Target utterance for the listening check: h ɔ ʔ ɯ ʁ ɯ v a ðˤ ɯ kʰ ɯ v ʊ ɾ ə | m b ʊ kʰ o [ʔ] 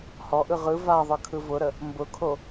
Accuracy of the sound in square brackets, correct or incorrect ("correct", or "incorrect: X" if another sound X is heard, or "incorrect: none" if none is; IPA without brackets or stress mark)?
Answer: incorrect: none